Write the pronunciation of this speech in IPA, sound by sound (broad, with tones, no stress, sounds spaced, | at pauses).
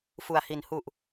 f u˨˩ a̯ h i˨˩ n h u˨˩ ʔ